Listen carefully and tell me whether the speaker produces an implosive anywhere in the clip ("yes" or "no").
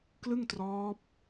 no